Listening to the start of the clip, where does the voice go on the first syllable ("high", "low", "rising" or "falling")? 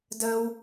low